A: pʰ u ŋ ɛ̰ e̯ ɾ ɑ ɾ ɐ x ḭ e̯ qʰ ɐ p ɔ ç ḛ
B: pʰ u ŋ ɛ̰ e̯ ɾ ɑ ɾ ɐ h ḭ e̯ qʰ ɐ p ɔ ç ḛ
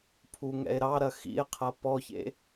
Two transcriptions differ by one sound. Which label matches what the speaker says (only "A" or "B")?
A